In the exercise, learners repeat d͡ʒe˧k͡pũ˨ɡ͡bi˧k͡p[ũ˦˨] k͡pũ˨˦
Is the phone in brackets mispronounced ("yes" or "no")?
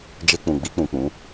yes